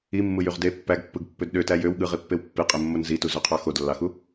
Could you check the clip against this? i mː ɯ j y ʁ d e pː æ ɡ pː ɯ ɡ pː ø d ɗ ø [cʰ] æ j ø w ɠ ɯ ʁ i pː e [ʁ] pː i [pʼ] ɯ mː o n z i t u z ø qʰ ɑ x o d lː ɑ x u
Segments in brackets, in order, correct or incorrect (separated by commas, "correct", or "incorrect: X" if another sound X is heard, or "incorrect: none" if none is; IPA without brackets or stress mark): incorrect: t, incorrect: w, incorrect: qʼ